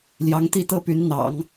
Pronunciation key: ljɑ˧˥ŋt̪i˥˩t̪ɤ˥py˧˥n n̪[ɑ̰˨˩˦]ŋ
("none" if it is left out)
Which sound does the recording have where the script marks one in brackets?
ɑ̰˨˩˦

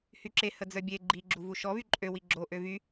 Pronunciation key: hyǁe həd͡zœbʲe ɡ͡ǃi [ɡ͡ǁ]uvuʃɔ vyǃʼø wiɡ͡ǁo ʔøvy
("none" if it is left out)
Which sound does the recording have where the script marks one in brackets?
ɡ͡ǁ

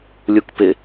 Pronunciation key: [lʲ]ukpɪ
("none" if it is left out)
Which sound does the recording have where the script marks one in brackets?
lʲ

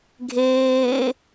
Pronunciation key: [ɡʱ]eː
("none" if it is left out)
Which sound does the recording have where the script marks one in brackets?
ɡʱ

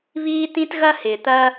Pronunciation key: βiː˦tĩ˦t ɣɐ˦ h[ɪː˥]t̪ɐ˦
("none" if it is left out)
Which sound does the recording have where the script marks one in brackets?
ɪː˨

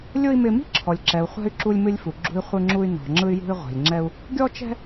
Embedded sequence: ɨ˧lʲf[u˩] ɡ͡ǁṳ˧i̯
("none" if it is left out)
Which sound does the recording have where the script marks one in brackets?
u˩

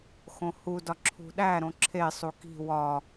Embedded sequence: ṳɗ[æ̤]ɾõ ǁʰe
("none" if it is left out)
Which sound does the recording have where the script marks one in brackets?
æ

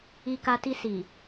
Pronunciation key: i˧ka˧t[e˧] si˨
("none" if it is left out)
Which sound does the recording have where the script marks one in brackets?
i˧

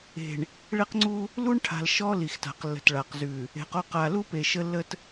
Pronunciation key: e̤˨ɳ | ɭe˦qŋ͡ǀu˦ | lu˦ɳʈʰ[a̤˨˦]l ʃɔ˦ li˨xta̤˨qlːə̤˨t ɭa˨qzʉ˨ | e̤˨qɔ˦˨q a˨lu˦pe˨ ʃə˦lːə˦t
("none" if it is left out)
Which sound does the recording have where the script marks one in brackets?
a̤˨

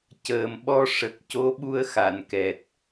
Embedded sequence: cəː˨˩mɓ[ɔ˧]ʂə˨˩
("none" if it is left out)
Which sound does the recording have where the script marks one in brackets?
ɔ˧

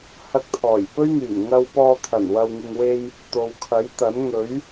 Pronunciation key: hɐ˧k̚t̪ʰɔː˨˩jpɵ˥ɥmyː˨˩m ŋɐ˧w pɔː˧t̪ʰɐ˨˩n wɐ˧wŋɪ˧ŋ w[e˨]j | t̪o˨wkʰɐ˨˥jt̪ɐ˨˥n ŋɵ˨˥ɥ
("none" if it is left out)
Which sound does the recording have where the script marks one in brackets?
e˧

